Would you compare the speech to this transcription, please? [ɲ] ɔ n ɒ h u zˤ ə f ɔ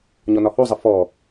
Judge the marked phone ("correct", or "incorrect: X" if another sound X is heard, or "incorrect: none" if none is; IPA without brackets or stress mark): correct